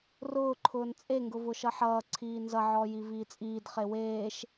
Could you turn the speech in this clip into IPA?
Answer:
r ʊː ǃʰ ʊː n t͡sʼ e ŋ ɡ ʊ v ʊ ʃ ʌ ħ ʌː ǀʰ iː n z ʌ ʕ ɔː j i v iː t͡sʼ iː d χ e w eː ʃ

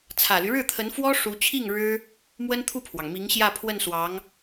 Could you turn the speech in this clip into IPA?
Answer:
t͡sʰ ä˨˩ l y˦ ɻ ɻ̩˥˩ t̪ʰ ə˧˥ n f w ɔ˥ ʂ u˧˥ t͡ɕʰ i˥˩ ŋ ɻ ɻ̩˥ | m w ə˥ n t̪ʰ u˥˩ pʰ w ɑ˩ ŋ m i˧˥ ŋ ɕ j ä˥˧ pʰ w ə˥˩ n s w ɑ˧˥ ŋ

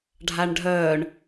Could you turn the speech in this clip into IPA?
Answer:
ɖʱ a ɳ ɖʱ œː ɳ

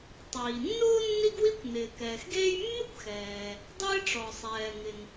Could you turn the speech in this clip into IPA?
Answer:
tˤ iː˩ nː ʊː˥ nː i˥ ɡ w i˥ kʷ n ɪː˩ k ɛː˩ x ɡ eː˥ j mː ɪ˥ kʷ x ɛː˩ | dˤ ɪː˥ ʈ͡ʂ ɔ˩ sˤ ɛː˩ ŋ ɪ˩ n

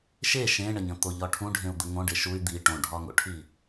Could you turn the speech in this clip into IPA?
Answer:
ʃ e ʃ ẽ ɳ ə ɲ ə̃ t̪ o ʎ ɒ ʈʰ ũ ɖʱ ẽ u̯ d̪ ə ŋ õ ɖ e ʃ u y̯ d̪ i ʈ õ ɖʱ ɒ ŋ o̰ ʈʰ i

